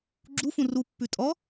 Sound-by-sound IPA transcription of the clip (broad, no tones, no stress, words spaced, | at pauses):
ɡ͡ǁufũ rupːʉ tʼɔ